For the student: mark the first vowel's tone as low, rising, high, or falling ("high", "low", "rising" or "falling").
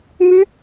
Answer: high